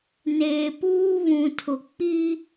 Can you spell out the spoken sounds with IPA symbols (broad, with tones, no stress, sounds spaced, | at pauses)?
n eː˨ p uː˦ β ũ˨ tʰ ʊ˨ k͡p i˦